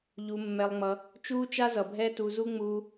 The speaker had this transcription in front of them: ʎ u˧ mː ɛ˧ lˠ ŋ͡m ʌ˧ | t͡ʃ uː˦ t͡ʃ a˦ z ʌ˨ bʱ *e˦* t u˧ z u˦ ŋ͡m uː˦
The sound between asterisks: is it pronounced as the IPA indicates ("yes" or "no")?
no